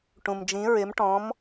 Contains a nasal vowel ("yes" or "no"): yes